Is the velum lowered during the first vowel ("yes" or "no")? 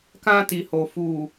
yes